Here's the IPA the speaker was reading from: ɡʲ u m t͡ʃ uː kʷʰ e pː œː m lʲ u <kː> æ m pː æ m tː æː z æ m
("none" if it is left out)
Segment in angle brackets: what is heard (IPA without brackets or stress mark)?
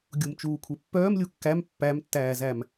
kː